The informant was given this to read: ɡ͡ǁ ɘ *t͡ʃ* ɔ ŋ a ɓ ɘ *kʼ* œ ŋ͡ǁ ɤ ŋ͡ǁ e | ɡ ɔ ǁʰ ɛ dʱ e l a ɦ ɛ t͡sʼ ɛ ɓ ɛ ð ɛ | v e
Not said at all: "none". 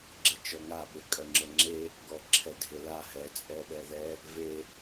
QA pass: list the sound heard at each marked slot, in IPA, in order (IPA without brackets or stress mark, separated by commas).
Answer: t͡ʃ, kʼ